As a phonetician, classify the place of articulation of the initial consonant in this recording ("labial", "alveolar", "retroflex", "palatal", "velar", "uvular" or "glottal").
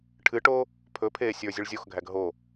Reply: retroflex